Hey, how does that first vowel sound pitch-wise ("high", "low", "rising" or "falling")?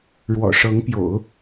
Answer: low